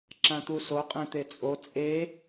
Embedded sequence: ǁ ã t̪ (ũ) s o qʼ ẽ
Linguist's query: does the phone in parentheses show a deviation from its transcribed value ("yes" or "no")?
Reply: yes